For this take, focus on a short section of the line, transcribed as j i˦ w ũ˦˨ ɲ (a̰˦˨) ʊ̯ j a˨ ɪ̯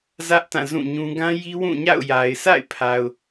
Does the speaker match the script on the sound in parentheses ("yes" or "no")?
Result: yes